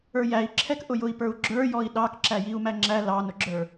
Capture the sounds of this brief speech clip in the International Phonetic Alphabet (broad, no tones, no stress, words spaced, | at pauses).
ə˞jæi̯ǁʰɛk ʔʊjʊi̯pə˞u̯ɡ͡ǁə˞ jɔi̯ɗɑkǁæ jiu̯mæŋ͡ǁæ lɑnʊɡ͡ǁə˞